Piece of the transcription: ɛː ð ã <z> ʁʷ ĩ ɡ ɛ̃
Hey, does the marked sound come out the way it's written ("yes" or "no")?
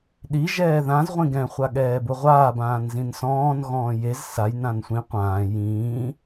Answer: yes